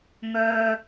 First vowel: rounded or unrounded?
rounded